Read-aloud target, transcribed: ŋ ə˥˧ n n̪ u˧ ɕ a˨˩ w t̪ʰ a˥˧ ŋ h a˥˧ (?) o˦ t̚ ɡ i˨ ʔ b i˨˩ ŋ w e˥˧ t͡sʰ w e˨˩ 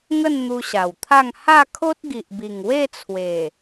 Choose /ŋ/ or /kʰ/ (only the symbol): kʰ